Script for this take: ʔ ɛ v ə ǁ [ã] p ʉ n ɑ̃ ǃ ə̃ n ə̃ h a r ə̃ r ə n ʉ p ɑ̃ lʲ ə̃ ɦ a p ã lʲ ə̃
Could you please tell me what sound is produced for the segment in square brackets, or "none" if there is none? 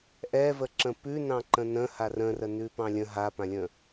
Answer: ə̃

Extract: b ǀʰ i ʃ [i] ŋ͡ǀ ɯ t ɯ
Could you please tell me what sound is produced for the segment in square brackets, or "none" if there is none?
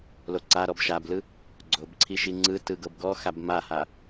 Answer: i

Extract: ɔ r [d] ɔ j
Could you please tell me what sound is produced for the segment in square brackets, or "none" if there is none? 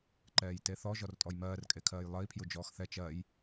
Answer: tʼ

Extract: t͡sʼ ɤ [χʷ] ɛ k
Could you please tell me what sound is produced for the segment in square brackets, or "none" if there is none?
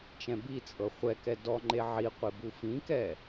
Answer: χʷ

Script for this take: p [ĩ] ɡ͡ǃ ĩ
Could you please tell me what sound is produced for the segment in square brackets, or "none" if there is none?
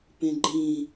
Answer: ẽ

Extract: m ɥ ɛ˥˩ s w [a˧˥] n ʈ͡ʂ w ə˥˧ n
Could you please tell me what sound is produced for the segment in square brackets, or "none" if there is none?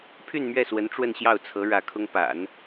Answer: ə˧˥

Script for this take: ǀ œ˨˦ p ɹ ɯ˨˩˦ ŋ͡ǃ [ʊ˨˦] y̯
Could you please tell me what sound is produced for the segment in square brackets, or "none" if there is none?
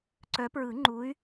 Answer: u˨˦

